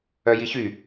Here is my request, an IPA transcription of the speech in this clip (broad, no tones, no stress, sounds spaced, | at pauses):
œ j i ç y